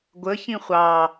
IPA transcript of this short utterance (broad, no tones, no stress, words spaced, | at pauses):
ɡʷə çĩχʷɑ